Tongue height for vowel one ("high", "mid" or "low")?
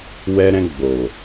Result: mid